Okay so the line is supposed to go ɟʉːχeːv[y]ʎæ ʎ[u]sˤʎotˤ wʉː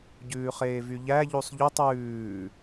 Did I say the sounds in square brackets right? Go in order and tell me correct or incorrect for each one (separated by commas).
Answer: correct, correct